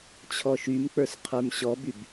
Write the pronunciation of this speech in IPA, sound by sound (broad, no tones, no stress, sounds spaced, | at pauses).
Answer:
t͡ɕʰ ɔ ʃ y m k͡p ə˞ s qʰ ə˞ m ɕ ɔ b y b